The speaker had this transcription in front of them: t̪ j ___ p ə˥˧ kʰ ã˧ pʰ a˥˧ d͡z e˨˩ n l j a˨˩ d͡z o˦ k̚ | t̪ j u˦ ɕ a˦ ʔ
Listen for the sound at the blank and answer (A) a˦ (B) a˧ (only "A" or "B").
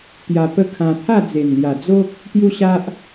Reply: B